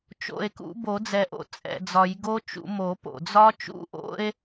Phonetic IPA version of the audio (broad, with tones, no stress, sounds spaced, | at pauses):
t͡ʃ o̰˨˩ e̯ k ṵ˨˩˦ b o˨˩˦ d͡z ɛ˨˩ ʔ o̰˨˩˦ t͡sʼ ɛ̰˨˩ d͡z ɒ˨˩˦ j ɡ o˦˥ t͡ʃ ṵ˨˩˦ m o˨˩˦ p o̰˨˩ d͡z ɒ˦˥ t͡ʃ ṵ˦˥ ʔ o̰˦˥ e̯